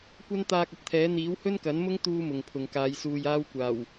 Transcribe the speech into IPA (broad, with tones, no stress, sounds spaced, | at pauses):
kʷ ɐ˥ n t̪ aː˧ k̚ ɐ˨ t̚ t̪ʰ ɛː˨˥ n̪ iː˨˥ w h ɵ˥ n k ɐ˨˥ n m ʊ˥ ŋ t̪ uː˥ m ʊ˨ ŋ pʰ ʊ˨ ŋ k aː˨˧ j s uː˧ j aː˥ w kʷ aː˨˩ w